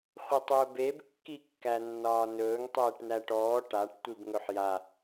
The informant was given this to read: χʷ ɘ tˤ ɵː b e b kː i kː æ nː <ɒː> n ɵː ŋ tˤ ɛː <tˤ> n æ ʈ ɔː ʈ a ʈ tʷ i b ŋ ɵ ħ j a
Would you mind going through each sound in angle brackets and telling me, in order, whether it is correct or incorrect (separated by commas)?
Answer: correct, incorrect